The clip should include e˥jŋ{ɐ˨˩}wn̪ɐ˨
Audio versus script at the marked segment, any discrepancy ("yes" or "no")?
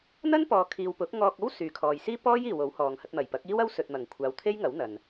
yes